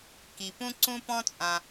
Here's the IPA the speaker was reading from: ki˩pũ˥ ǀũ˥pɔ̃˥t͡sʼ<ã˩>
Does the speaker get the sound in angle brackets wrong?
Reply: no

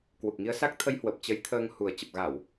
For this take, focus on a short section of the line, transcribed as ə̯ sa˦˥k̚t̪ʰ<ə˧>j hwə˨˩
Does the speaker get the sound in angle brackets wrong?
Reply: no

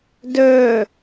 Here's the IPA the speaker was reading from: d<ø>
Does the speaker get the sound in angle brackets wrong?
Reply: no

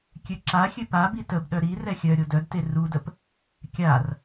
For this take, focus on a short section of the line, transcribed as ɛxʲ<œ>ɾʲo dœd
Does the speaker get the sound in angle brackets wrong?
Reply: no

